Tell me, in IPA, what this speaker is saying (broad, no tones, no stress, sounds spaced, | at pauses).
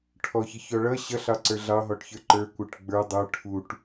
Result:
ʈʰ ɔ ç ɪ ç ɔ ɭ ʌ ɕ ʌ ɬ ɑ ǀ ə˞ ɮ ɑ ɦ ɔ ʈ ç ə˞ ǃ ə˞ kʷ ə˞ ʈ ɡ͡b ə˞ dˤ ə˞ ʈʰ u ʈ